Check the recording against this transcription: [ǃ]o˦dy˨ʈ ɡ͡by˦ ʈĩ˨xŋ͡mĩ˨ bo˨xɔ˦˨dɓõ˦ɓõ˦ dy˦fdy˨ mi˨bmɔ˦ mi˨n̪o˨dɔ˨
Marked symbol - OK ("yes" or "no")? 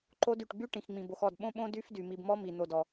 yes